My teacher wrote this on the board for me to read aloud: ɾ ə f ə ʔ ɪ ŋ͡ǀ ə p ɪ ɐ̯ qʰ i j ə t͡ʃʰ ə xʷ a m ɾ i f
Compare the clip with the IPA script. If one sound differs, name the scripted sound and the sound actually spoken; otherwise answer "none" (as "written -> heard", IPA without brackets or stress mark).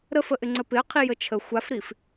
m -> f